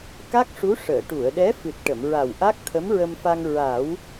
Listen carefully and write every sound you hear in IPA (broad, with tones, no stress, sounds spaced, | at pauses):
k a˦˥ k̚ ʂ u˧˥ ʂ əː˨˩˨ ʈ u˨˩˨ ə̯ ɗ ɛ˧˥ f ɨ˨˩ t̚ ʈ ə˨˩˨ m ɹ a˨˩ w ʔ a˦˥ k̚ t̪ʰ ə˧˥ m ɹ ə˧ m f a˧ ŋ ɹ a˨˩˦ w